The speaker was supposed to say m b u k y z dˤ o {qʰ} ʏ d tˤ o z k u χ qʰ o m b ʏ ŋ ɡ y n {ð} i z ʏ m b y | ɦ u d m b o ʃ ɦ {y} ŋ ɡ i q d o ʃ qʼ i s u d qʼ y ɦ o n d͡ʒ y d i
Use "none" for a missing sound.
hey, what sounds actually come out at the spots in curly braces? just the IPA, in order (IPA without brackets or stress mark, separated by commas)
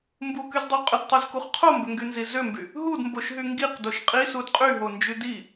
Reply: qʼ, z, y